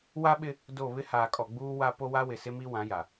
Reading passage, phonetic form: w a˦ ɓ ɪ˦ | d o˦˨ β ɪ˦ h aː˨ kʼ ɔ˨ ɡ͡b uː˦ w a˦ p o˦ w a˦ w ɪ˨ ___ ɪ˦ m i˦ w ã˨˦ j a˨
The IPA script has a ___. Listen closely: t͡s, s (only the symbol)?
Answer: s